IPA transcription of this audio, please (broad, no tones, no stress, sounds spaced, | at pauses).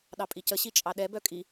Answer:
ɗ ɑ pʼ i c ə ɕ i t͡ʃʼ ɑ ɗ ɛ b œ kʼ i